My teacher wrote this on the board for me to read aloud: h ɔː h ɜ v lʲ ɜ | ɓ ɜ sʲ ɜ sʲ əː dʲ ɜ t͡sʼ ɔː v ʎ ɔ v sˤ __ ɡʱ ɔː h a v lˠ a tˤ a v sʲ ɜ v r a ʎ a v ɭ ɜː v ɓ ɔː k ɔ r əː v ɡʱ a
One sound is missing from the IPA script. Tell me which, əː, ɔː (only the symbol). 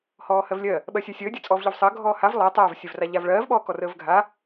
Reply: əː